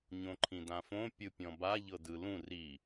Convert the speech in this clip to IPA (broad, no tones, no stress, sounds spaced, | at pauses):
ɲ õ ǃʰ ĩ d ã f õ pʲ ɯ pʲ ɔ̃ b a ʎ ɤ d ɯ l ũ r i